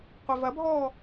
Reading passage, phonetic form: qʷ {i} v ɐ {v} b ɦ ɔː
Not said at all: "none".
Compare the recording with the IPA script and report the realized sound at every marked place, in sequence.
i, none

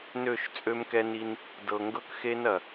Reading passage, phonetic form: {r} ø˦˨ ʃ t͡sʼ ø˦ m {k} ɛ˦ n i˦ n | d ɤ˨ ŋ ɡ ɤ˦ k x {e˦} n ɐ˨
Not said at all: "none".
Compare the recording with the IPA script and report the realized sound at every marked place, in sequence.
n, k, e˦

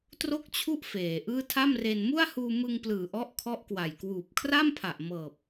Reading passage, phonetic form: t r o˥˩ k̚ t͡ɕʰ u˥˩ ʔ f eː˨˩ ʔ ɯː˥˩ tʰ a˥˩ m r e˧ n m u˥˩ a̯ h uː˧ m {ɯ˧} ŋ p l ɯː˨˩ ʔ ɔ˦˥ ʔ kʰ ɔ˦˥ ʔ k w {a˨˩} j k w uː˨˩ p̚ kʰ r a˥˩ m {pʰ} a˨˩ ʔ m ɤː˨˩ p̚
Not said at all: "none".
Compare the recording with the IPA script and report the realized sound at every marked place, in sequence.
ɯ˧, a˨˩, pʰ

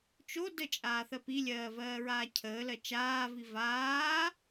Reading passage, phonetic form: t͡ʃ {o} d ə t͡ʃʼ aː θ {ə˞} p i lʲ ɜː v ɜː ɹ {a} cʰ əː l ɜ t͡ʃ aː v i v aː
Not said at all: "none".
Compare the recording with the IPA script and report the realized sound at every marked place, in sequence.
o, ɜ, aː

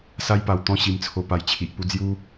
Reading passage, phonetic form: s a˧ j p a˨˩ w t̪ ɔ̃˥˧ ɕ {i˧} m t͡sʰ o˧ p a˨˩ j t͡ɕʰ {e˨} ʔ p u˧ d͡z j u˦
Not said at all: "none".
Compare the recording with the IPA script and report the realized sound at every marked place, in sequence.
i˧, i˨

